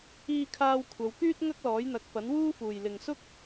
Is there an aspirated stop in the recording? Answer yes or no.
yes